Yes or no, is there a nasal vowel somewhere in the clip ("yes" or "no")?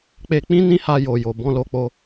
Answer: yes